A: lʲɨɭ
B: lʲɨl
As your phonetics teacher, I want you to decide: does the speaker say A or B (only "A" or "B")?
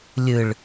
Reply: A